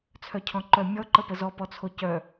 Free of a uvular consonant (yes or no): yes